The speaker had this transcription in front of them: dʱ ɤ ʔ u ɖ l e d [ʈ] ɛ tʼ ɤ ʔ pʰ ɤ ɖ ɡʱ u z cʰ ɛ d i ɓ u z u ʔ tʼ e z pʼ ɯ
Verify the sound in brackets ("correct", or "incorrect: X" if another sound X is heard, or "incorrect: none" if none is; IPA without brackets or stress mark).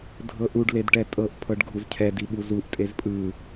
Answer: correct